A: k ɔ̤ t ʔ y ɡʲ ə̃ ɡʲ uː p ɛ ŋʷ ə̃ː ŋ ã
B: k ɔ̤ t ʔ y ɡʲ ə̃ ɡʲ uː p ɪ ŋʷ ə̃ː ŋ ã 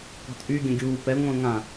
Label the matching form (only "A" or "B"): A